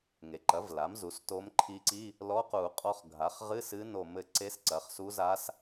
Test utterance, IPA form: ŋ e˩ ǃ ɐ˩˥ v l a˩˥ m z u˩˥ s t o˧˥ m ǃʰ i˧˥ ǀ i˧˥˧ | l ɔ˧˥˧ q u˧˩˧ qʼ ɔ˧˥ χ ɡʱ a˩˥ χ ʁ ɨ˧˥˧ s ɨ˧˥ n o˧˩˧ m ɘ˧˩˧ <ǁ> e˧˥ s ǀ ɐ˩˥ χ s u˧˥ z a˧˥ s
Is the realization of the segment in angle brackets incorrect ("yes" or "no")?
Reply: yes